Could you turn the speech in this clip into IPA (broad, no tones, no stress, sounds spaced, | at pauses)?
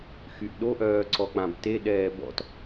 x y ʔ ɗ o ʔ œː ǀ ɔ k͡p ã b t e ɗ ɛː b ɔ̰ t